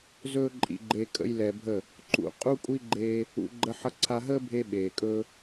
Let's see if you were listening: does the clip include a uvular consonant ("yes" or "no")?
yes